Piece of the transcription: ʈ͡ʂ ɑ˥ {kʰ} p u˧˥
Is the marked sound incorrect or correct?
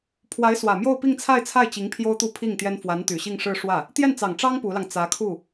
incorrect